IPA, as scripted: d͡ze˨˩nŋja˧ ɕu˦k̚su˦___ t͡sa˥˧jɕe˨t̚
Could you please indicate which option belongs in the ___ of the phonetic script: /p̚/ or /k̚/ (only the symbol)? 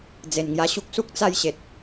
k̚